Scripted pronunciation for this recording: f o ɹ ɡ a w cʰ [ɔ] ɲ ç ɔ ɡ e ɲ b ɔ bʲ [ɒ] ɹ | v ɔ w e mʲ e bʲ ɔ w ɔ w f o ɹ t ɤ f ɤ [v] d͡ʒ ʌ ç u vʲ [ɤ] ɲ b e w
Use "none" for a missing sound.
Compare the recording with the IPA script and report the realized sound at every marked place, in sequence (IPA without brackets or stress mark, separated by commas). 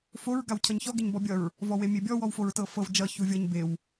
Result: ʌ, ʌ, v, ɤ